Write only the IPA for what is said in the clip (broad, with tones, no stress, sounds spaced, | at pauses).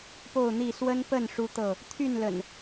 p o˥˨ ʊ̯ n̪ i˥˨ s w ə˦ n p ə˥˨ n ʂ u˦ t̪ ɤ˥˨ | t̪ʰ y˥˨ n l ə̰˨˩ n